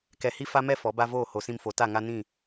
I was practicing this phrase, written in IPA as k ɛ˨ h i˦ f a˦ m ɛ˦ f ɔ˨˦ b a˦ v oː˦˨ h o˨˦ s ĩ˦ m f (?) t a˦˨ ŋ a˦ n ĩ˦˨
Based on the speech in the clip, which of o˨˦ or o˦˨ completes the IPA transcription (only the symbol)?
o˨˦